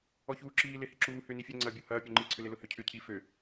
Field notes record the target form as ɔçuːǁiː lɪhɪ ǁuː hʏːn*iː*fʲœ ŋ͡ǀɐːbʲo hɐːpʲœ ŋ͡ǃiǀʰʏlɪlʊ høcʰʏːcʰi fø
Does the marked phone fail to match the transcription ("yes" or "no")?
yes